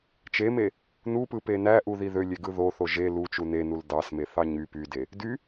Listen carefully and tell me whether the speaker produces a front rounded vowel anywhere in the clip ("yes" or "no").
yes